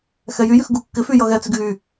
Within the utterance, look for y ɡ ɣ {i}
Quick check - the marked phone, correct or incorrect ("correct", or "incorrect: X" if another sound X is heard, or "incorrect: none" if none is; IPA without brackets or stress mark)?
incorrect: y